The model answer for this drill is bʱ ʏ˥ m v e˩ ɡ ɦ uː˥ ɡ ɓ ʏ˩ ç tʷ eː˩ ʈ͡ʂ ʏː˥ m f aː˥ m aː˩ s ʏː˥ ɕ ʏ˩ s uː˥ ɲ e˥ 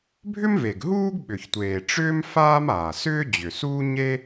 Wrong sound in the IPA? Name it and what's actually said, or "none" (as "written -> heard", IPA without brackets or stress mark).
ɕ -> d͡ʑ